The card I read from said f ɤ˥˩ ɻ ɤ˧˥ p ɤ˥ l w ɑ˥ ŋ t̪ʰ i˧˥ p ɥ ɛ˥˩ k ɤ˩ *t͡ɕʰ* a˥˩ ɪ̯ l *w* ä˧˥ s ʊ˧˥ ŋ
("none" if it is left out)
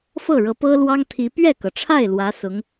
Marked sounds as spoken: ʈ͡ʂʰ, w

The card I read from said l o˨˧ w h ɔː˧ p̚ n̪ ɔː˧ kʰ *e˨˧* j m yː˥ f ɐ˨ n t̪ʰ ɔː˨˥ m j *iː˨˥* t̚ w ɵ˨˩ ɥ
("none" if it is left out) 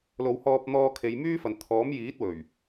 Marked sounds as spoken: e˨˧, iː˨˥

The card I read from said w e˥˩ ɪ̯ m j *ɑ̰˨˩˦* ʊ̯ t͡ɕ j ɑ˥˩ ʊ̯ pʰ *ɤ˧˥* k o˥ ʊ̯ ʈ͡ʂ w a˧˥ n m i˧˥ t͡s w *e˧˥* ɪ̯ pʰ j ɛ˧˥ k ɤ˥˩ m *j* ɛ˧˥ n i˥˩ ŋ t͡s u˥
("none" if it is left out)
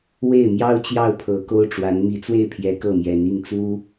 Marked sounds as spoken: ɑ˥, ɤ˧˥, e˥˩, j

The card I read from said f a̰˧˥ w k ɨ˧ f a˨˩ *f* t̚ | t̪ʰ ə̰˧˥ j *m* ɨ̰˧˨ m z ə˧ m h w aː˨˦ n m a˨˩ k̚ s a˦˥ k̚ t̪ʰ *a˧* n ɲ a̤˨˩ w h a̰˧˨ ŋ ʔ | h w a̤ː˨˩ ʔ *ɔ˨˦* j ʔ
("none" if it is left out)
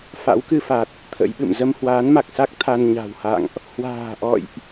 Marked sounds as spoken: none, ɓ, a˧, ɔ̰˧˨

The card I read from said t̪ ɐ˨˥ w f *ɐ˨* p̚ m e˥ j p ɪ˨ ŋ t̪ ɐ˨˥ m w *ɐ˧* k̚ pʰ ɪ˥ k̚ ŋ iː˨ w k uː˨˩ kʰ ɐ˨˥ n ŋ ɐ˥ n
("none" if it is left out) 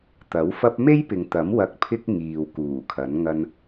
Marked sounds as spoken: ɐ˥, ɐ˥

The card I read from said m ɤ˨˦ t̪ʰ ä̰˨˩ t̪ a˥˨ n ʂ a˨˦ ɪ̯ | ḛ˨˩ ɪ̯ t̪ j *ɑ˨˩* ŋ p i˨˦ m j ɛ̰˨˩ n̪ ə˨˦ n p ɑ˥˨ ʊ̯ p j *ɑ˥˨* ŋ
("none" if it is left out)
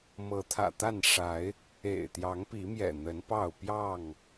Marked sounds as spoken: ɑ˨˦, ɑ˥˨

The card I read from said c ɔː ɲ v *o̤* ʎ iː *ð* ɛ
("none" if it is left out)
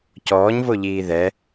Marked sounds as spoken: o, ð

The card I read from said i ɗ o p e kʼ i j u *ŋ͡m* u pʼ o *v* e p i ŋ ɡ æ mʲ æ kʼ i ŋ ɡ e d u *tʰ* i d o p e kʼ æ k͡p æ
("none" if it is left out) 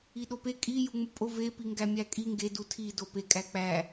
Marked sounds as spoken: ŋ͡m, v, tʰ

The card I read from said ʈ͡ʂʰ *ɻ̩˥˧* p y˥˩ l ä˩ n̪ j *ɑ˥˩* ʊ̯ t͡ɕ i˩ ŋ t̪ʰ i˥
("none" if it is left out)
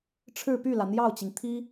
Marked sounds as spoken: ɻ̩˥˧, ɑ˥˩

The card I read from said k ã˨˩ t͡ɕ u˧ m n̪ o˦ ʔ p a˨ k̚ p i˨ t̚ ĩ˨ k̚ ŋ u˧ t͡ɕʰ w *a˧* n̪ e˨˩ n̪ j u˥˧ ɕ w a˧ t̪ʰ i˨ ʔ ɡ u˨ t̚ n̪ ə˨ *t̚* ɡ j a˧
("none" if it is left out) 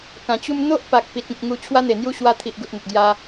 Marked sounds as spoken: a˦, t̚

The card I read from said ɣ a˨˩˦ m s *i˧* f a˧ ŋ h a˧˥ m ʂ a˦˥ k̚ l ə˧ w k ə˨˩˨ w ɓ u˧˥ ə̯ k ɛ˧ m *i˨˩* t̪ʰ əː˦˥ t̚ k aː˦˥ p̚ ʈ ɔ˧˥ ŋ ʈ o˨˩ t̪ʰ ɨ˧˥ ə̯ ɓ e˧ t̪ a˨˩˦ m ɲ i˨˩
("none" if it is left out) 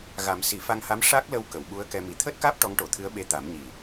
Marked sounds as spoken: i˨˩˦, i˨˩

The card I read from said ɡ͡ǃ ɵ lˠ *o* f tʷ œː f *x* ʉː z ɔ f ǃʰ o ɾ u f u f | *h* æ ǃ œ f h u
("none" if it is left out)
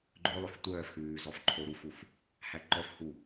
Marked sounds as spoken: ɵ, x, h

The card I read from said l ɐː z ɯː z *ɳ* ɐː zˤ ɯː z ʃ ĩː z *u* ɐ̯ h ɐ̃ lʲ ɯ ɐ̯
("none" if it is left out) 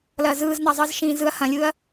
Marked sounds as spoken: n̪, ɯ

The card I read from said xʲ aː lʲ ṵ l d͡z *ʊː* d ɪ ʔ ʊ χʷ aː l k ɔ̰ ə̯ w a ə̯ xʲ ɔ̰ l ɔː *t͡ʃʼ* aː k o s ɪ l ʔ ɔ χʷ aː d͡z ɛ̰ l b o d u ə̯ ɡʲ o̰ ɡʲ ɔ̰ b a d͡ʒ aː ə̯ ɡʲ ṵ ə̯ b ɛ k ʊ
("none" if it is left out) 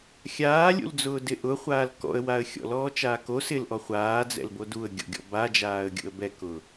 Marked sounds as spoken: ʊː, t͡ʃ

